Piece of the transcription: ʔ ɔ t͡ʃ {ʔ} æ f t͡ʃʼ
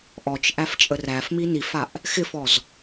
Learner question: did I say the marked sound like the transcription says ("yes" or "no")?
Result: yes